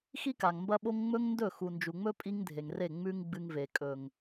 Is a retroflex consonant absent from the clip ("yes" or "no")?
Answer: yes